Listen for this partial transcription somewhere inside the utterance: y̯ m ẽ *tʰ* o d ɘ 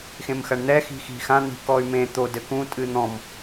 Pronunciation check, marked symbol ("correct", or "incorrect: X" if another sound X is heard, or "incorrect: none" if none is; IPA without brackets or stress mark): incorrect: t̪